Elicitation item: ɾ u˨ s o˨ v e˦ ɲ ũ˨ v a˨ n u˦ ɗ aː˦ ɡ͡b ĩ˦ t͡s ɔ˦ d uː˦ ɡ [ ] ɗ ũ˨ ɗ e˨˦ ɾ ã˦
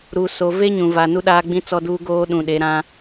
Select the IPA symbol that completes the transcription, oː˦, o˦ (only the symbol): oː˦